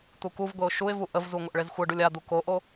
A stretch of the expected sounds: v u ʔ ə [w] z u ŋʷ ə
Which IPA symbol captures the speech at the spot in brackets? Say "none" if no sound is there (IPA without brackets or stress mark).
v